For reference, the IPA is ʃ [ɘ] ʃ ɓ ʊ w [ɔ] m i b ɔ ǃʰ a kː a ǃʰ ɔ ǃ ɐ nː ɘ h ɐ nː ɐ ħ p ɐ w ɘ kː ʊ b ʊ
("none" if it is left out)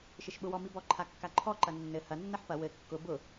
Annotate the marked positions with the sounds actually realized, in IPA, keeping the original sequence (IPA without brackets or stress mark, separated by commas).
ɘ, ɔ